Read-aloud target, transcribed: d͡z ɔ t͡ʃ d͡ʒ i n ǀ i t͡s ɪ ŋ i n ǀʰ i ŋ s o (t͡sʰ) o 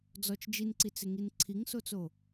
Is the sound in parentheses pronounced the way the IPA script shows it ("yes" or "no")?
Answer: no